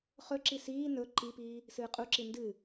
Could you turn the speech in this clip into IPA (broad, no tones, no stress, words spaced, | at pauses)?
χɵǁi siː nɵ ǃipiː | sɨːqʼuǁi ndɨ